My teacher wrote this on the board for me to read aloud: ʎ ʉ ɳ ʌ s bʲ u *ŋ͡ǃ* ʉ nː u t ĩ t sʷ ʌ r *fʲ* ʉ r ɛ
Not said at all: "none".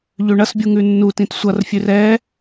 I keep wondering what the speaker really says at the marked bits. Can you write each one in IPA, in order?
ŋ, fʲ

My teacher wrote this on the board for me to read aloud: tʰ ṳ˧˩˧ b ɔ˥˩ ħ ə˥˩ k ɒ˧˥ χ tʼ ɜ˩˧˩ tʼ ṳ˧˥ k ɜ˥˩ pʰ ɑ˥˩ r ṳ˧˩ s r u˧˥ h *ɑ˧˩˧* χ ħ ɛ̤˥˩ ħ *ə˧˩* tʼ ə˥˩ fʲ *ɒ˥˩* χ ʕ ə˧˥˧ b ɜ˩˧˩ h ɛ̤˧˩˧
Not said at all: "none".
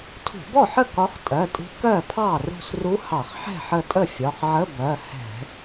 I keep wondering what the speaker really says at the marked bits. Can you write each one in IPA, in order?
ɑ˧˩˧, ə˧˩, ɒ˩˧˩

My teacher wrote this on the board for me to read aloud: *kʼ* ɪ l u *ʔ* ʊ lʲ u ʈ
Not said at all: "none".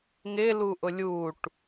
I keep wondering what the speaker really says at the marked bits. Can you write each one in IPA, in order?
ŋ, ʔ

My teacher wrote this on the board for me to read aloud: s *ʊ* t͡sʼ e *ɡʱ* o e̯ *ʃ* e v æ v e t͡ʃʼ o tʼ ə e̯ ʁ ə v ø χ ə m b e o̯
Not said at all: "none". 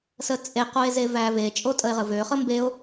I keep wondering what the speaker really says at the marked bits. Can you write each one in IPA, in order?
ə, q, z

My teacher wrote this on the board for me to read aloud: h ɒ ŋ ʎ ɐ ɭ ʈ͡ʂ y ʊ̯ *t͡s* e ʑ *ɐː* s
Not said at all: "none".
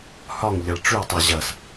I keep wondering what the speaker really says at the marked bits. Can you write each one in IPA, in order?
tˤ, ɐ

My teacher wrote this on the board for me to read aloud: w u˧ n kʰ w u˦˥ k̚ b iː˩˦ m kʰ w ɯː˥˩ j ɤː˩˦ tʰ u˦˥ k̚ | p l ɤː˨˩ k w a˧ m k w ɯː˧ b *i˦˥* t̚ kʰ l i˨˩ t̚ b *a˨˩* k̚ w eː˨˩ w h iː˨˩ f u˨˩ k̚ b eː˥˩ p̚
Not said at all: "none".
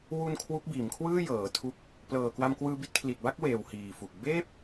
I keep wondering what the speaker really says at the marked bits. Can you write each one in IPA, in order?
i˦˥, a˥˩

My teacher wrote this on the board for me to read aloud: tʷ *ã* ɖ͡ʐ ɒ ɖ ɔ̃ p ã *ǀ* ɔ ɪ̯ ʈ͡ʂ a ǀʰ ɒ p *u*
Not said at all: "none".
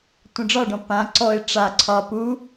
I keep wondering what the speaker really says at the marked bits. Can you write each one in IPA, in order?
ə̃, ǀ, u

